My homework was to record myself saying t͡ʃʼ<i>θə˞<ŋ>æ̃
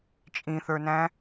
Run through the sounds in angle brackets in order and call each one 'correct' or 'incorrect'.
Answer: incorrect, incorrect

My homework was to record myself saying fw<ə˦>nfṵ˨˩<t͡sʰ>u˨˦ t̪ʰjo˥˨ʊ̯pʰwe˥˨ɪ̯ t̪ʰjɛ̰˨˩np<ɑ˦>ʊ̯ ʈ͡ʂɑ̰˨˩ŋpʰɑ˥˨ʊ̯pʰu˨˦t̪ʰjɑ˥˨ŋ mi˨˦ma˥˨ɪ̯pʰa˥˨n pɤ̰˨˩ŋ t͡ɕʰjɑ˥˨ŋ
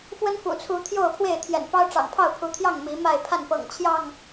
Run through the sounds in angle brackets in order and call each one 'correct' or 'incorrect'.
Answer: correct, correct, correct

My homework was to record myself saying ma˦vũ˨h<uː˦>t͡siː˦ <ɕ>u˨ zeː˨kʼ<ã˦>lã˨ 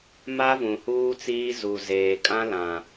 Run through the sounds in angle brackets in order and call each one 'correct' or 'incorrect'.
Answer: correct, incorrect, correct

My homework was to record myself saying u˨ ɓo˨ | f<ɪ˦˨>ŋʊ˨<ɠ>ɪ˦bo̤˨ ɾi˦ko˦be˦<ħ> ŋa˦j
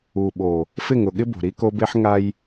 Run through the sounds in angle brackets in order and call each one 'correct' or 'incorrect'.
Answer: correct, correct, correct

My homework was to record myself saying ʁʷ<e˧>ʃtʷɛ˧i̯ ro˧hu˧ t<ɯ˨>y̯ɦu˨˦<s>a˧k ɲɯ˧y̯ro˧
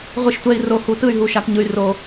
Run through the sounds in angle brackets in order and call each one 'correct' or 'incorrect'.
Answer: incorrect, incorrect, incorrect

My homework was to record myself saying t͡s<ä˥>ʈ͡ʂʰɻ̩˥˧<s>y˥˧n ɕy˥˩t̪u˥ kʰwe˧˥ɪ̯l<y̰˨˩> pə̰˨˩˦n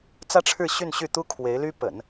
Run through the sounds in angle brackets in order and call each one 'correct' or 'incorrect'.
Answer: correct, incorrect, incorrect

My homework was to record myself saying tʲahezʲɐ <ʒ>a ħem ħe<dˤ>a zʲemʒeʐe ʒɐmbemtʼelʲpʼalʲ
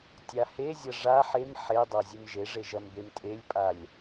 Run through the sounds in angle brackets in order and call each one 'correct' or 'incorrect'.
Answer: incorrect, correct

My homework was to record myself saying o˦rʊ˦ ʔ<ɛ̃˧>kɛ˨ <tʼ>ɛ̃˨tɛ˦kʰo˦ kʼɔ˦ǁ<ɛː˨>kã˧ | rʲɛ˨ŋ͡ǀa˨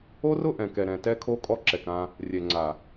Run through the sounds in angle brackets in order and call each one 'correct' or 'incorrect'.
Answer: incorrect, incorrect, incorrect

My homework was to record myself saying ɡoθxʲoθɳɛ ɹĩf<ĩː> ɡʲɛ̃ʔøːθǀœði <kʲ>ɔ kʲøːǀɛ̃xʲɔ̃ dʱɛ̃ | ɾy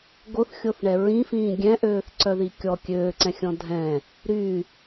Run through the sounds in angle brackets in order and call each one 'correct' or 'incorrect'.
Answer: correct, correct

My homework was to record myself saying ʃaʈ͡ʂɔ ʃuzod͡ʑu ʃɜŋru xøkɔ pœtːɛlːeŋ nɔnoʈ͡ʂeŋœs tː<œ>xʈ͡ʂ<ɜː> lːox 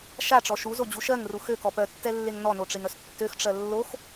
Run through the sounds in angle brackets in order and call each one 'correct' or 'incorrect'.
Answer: incorrect, incorrect

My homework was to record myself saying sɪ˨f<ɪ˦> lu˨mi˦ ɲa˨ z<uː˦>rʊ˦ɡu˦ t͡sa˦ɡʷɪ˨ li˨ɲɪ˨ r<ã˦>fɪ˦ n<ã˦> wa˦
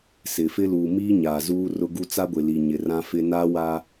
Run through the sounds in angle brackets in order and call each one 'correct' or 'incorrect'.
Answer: correct, correct, correct, incorrect

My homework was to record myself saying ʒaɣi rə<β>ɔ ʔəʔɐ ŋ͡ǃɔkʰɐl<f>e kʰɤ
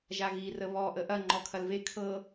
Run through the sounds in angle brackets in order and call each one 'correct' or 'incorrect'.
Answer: correct, incorrect

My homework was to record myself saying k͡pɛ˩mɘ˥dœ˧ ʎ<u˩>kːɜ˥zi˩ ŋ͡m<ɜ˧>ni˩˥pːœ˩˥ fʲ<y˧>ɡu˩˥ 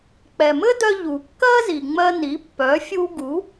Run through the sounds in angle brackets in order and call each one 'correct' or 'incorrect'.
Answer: correct, correct, incorrect

